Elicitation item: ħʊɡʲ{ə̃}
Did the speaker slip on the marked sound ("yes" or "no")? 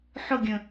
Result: no